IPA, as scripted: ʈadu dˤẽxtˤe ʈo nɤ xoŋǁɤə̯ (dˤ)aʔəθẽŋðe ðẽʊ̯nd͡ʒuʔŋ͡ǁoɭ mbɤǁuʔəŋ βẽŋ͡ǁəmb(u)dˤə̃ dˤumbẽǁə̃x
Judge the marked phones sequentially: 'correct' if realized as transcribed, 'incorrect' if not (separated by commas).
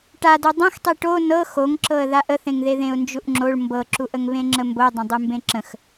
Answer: incorrect, incorrect